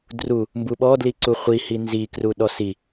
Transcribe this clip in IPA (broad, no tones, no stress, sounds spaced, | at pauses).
d r u | m b u ɓ ɔ d l i ǀ u χʷ i h i n z i k r u ɗ ɔ s i